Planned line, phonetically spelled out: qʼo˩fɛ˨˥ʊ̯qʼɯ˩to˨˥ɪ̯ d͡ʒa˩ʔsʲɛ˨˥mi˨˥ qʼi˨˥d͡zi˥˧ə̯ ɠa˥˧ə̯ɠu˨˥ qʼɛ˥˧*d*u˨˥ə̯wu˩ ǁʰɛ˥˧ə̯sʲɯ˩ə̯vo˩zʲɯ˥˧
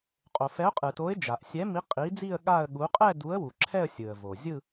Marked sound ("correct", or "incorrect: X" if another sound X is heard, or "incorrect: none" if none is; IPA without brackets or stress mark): correct